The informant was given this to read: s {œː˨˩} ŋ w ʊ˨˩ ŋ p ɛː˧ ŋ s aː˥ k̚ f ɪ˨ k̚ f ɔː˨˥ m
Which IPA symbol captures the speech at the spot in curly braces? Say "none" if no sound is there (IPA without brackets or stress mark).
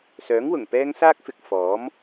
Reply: œː˨˥